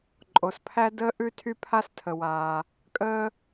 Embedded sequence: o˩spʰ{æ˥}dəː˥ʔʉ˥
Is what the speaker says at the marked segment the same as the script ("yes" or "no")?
yes